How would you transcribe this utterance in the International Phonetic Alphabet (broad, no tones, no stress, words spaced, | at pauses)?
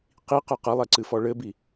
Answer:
qiqɘ qɐlˠɛǀɨfɔ ɭɘbi